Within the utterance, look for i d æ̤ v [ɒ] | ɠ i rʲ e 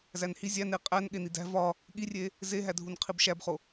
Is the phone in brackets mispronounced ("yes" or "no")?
no